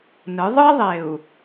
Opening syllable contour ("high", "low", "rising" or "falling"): rising